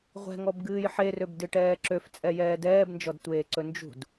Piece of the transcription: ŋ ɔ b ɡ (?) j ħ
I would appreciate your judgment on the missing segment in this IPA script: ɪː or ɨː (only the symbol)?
ɨː